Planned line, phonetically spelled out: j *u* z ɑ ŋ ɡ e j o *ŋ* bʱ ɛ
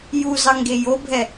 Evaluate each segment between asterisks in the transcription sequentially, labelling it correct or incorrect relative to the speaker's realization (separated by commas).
correct, incorrect